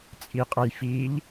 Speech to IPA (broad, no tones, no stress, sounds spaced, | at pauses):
t͡sʼ i qʼ ɐ j f i ʎ